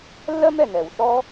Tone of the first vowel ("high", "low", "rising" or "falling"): high